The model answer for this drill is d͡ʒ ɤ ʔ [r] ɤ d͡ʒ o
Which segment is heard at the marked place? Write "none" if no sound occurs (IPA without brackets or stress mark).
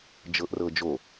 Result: r